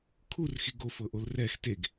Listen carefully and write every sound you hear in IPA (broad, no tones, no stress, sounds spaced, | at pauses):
kʰ u r x i ɡ o f ɤ ʔ o l r ɛ x t e ɡ